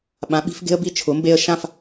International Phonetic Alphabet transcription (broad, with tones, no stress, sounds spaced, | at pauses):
ɓ ã˩˥ ɓ i̤˩˥ f ɡ e̤˥ ə̯ b i˥˩ t͡ʃʰ ʊ˩˥ m b e˧ ə̯ ʃ ã˥˩ f